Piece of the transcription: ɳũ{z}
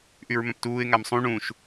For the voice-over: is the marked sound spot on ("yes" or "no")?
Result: no